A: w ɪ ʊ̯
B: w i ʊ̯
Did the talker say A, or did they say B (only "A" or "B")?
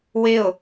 A